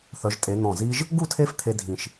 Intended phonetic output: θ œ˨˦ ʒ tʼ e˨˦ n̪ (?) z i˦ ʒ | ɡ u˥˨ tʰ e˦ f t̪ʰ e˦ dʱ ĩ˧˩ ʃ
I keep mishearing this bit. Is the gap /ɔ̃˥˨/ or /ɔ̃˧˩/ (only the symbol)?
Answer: ɔ̃˧˩